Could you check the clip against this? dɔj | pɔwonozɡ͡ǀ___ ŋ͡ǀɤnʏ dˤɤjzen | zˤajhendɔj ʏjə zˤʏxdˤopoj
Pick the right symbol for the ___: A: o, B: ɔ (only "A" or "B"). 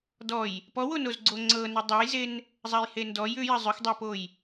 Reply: A